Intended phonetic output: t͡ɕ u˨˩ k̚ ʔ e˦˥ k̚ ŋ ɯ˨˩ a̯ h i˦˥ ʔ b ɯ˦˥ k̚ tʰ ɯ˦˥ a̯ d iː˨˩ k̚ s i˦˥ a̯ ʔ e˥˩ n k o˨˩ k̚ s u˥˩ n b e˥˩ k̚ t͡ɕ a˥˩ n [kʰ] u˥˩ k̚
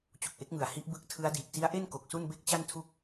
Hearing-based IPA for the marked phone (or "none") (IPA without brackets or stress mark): tʰ